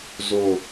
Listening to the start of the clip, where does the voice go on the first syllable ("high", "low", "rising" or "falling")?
falling